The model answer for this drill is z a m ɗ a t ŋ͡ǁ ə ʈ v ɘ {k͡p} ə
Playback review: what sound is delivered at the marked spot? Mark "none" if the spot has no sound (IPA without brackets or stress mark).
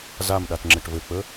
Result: k͡p